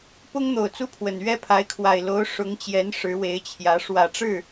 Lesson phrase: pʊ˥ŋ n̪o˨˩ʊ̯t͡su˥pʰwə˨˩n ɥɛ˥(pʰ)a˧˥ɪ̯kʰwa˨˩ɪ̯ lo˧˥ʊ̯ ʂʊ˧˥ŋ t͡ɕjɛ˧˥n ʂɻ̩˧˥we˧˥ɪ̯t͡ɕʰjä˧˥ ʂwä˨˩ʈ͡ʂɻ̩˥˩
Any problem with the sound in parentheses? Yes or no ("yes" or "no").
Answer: no